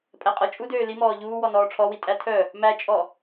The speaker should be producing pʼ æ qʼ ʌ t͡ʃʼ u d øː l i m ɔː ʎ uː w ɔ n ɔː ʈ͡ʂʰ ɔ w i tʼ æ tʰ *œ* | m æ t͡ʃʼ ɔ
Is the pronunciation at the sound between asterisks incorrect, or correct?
correct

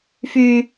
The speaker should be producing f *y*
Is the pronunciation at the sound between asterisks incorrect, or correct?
correct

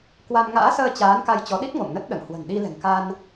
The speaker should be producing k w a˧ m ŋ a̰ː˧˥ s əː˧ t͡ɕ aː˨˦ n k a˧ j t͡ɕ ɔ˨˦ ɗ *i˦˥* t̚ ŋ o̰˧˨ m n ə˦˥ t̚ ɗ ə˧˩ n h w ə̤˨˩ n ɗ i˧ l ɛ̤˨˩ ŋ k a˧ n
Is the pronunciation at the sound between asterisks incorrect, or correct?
correct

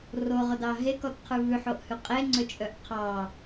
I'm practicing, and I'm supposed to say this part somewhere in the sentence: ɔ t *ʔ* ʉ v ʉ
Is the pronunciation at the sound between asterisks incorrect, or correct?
incorrect: qʰ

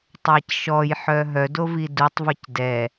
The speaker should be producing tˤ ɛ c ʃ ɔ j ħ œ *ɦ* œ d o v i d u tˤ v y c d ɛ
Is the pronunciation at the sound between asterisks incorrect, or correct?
correct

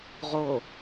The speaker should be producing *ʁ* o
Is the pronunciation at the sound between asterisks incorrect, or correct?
correct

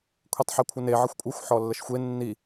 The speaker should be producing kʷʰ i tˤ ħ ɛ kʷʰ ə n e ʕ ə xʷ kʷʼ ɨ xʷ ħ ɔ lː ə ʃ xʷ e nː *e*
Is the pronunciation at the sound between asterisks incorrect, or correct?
incorrect: i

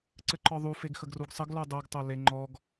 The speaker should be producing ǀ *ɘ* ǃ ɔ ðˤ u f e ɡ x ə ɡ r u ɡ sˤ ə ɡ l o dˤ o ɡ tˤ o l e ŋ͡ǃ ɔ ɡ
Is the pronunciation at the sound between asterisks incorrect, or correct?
correct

